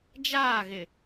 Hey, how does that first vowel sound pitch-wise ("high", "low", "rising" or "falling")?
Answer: falling